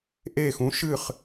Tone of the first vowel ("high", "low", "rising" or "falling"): falling